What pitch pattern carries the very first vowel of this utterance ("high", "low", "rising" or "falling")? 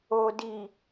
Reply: low